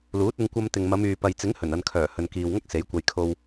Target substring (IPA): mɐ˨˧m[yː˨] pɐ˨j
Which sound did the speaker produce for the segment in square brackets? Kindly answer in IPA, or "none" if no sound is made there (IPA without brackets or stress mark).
yː˨